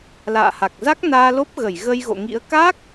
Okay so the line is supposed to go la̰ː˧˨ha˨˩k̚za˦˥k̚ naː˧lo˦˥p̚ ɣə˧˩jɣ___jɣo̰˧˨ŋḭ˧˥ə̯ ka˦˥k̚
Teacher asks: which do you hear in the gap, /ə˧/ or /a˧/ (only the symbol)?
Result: ə˧